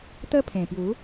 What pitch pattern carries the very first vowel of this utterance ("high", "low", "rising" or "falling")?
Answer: high